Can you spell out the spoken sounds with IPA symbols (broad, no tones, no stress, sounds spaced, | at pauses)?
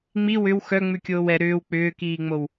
ŋ͡m i w ʏ w x œ ŋ͡m ʉ kʲ oː w ɛ ɾ ʏː w k͡p ʏː k iː ŋ͡m o w